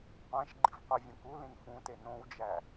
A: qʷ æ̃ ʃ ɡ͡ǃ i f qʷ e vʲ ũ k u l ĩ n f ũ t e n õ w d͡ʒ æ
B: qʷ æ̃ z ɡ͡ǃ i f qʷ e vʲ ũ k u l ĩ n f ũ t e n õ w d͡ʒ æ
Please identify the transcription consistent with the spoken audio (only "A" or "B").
A